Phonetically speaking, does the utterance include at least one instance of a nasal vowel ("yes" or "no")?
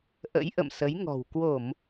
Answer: no